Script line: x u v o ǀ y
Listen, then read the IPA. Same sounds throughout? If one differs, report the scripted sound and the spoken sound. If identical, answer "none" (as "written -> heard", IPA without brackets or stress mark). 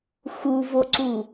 y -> u